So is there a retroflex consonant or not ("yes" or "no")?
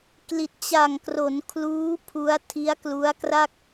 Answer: no